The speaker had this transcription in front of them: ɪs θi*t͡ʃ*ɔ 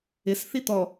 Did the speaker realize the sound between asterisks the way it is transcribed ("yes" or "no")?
no